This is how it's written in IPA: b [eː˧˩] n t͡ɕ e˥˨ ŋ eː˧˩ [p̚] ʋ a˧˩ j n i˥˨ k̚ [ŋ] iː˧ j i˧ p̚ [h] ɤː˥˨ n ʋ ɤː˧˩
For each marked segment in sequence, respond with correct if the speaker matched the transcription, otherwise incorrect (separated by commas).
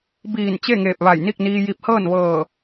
incorrect, correct, incorrect, correct